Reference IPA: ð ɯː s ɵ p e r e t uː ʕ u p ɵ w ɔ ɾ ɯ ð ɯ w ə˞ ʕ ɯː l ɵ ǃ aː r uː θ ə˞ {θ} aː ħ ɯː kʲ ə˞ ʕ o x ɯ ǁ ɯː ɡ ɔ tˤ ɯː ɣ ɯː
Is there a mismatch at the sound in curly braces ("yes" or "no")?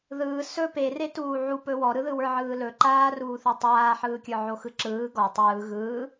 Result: yes